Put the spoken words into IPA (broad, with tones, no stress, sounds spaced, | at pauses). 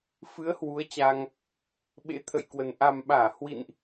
f ɨ˨˦ ə̯ h w u˨˦ ə̯ t͡ɕ a˧ ŋ | ɓ ḛ˧˥ t̪ʰ ə̰˧˨ j k w ə˨˩ n ʔ a˨˩ m ɓ aː˧˩ h w ḭ˧˨ n ʔ